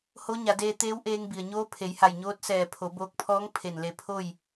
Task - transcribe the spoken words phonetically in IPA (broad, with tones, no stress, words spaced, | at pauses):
ho˧˥ɲa˩˧deː˧ t̪eː˧˥wʔeː˧ŋbi˩ə̯ɲoː˧˥ pʰe˩˧jha˧˩jɲoː˧˥t̚sɛː˧˩ pʰo˩˧boː˧k̚pʰɔː˧˥ŋ pʰe˧˩nle˧˩pʰo˥˨j